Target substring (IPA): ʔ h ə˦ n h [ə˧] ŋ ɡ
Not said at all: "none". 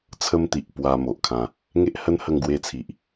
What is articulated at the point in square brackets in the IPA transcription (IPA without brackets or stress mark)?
ə˧